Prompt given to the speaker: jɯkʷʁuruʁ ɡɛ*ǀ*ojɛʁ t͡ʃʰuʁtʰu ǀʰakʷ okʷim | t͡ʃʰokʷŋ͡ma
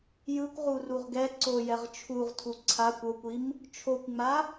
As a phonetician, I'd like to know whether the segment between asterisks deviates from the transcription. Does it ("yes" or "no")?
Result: no